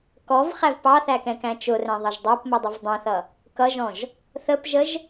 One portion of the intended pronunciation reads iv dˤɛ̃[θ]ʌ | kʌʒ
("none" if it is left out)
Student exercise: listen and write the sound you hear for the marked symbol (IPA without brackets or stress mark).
θ